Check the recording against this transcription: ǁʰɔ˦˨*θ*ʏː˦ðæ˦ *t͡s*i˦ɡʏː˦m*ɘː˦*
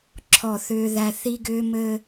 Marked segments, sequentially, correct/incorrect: correct, incorrect, correct

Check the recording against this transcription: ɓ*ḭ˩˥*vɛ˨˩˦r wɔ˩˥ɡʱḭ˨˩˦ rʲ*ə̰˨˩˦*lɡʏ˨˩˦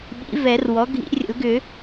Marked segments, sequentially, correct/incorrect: correct, correct

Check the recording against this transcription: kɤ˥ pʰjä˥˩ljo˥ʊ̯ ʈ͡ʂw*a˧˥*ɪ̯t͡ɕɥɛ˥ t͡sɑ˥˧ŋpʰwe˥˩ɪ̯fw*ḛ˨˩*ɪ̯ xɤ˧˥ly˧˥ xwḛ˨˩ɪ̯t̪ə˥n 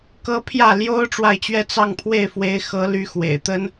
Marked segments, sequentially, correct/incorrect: incorrect, incorrect

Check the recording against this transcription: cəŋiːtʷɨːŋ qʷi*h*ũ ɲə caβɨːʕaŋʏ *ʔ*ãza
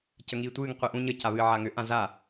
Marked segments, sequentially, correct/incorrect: incorrect, correct

